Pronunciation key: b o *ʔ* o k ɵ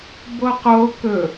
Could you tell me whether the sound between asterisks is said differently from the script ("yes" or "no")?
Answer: yes